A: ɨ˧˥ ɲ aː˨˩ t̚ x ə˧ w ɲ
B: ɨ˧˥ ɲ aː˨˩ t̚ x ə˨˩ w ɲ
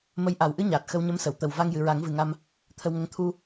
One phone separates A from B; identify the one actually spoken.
A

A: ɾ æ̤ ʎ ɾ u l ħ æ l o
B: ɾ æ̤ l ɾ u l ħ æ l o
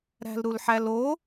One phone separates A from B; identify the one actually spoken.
B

